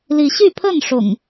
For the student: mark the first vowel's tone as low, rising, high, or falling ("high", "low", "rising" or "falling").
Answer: rising